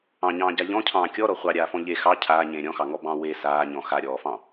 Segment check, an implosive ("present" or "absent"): absent